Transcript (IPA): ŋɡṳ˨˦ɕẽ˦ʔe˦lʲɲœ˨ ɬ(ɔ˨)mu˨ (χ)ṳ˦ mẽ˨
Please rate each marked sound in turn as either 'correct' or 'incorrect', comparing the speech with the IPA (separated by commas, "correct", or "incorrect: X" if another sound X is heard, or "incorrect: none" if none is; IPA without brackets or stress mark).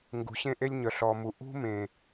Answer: correct, incorrect: ʔ